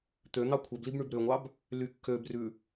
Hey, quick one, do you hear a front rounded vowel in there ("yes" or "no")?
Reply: yes